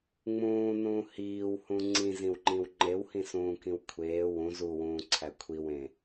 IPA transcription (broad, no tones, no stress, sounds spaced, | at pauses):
ŋ͡m ũː n ũː h iː w h ũ ŋ͡ǀ ĩ z ĩ w ŋ͡ǃ ĩ w ŋ͡ǃ e w h ĩ s ũː k ĩ w kʷʰ eː w ũ z u w ũː ǀʰ æ kʷʰ i w ẽ